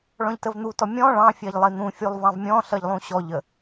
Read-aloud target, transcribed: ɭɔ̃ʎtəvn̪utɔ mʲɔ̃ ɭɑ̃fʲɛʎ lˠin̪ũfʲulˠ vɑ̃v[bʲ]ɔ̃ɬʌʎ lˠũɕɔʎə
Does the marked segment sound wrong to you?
yes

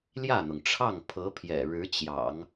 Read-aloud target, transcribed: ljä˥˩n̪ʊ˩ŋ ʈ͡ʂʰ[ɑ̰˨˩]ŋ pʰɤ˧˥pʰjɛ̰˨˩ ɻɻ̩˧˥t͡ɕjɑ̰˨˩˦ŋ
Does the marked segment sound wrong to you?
yes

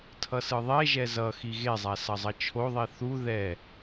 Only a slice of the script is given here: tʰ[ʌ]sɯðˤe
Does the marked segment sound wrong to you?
no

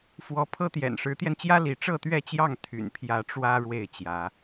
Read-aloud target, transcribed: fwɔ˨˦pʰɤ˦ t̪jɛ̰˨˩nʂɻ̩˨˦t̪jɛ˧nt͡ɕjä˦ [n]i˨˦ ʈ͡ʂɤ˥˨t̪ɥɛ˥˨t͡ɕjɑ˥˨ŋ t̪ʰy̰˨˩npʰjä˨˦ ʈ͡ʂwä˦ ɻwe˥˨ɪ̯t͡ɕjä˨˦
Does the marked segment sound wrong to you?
yes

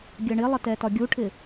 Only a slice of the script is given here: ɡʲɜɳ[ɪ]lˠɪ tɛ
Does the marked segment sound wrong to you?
no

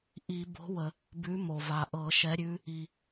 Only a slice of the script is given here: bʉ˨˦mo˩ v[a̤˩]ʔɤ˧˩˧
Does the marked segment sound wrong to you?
yes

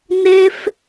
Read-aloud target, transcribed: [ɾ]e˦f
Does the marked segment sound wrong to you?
yes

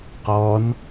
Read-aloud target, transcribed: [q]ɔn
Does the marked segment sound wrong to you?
no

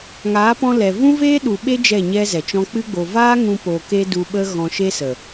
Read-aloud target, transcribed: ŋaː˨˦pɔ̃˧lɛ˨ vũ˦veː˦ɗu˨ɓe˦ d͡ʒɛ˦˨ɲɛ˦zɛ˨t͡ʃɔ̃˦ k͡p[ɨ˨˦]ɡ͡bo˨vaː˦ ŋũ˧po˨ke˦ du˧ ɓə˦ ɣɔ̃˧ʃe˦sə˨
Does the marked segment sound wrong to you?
yes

